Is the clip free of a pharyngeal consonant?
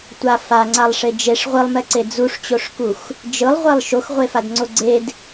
yes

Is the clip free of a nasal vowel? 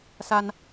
yes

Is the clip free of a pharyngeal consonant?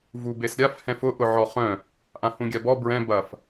no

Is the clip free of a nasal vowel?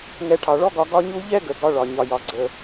yes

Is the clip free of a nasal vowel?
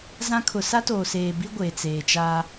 no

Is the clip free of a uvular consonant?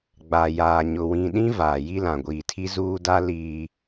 yes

